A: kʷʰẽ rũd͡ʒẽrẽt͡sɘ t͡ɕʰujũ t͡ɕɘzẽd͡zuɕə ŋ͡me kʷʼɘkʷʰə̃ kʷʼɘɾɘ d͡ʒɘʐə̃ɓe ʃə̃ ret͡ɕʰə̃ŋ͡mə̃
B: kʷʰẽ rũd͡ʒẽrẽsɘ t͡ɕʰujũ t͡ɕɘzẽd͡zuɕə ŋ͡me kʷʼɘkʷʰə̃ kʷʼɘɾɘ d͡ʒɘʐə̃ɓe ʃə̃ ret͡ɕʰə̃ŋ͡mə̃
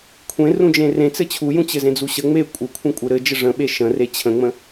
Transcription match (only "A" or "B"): A